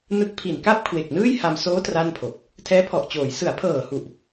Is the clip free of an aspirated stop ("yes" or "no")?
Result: no